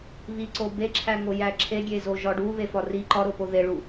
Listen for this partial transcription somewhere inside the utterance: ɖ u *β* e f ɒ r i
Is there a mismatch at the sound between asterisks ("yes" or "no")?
no